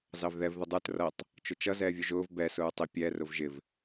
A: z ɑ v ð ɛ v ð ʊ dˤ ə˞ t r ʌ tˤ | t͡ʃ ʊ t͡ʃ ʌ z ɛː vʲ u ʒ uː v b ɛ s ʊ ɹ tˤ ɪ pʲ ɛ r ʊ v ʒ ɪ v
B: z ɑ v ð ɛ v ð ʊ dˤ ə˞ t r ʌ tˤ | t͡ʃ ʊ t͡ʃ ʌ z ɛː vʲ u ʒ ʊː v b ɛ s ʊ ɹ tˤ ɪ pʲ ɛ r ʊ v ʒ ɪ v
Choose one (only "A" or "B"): B